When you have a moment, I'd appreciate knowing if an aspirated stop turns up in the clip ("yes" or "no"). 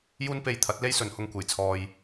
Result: yes